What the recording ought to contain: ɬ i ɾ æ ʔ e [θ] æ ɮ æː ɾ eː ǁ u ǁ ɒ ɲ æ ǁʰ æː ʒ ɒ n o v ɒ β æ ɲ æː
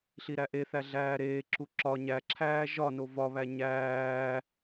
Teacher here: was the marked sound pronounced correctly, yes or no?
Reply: yes